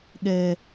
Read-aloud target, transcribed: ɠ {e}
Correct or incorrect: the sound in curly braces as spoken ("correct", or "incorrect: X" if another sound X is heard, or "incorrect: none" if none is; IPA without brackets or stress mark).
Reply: incorrect: ɛ